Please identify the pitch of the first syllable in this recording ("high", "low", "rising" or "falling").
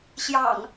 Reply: low